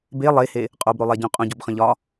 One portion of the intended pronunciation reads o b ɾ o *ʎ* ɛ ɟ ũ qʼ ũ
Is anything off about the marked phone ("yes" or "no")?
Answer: yes